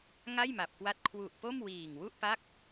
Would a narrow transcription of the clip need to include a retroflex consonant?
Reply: no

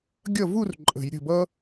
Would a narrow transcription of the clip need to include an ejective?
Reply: yes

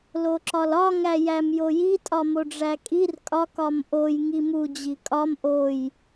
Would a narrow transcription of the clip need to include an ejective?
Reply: yes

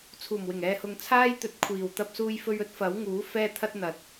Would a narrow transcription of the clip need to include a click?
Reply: no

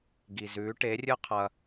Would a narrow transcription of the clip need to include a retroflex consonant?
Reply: yes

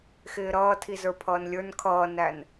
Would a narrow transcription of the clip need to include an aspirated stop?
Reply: yes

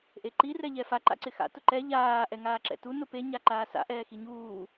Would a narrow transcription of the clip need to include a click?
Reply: yes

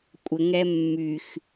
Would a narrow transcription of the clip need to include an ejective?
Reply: yes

